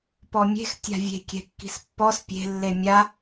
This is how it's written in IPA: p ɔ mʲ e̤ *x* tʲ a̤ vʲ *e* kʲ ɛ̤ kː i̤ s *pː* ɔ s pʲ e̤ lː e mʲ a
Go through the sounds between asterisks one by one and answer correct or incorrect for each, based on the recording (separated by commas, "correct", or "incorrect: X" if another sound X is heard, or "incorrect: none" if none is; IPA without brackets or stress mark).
correct, incorrect: e̤, correct